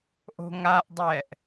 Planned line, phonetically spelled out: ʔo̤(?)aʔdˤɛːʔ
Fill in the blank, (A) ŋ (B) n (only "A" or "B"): A